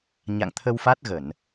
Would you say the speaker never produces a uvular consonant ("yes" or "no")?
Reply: yes